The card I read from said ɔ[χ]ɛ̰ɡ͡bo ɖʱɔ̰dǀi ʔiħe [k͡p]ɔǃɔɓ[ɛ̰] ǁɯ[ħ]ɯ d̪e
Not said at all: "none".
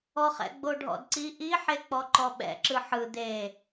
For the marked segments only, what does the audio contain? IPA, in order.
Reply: χ, k͡p, ɛ̰, ħ

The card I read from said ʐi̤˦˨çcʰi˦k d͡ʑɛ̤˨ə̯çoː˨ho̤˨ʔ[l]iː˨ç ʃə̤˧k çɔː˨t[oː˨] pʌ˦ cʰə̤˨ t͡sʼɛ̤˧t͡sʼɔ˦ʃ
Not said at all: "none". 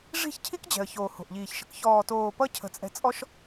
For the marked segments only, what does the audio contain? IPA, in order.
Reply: ʎ, oː˨

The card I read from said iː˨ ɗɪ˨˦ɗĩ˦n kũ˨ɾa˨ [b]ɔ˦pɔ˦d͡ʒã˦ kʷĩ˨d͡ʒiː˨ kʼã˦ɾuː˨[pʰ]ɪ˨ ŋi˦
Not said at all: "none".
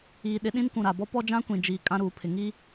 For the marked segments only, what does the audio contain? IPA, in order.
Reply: b, pʰ

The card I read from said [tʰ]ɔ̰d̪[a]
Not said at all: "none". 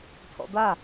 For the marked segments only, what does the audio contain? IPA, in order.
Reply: tʰ, a

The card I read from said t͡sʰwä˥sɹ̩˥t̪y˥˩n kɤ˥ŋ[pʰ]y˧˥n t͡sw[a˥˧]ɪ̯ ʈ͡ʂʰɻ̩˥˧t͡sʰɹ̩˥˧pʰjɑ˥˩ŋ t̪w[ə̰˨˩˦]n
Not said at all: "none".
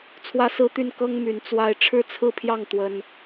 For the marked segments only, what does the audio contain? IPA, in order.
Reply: m, a˥˧, ə˥

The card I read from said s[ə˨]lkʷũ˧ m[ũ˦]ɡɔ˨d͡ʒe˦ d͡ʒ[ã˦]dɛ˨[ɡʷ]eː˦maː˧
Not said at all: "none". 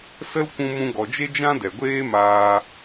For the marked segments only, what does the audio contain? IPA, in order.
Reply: ə˦, ũ˧, ã˦, ɡʷ

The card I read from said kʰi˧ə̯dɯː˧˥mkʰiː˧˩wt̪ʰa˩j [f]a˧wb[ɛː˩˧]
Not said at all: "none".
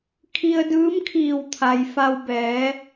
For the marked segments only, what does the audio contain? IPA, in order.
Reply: f, ɛː˩˧

